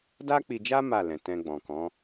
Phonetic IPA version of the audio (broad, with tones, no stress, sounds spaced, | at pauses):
d a˦ k͡p i˧ d͡ʒ a˦ m a˦˨ l ɛ̃˨ t ɛ̃˧ ɡ͡b ɔ̃˨ k ɔ̃˨˦